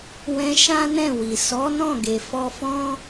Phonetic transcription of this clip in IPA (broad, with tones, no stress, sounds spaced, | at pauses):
w ɛ̃˧ ʃ ã˦ n ɛ̃˦˨ w i˨ s ɔ˨˦ n ɔ̃˦˨ ɡ e˨ f ɔ˧ f ɔ̃˦